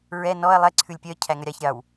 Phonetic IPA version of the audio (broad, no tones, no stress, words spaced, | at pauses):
ɹɛ nɔɐ̯ lˠɛ ǀʰʉlʲpʲœ cʰæŋœɾʲɑç ɾʲɑw